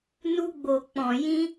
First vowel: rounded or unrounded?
rounded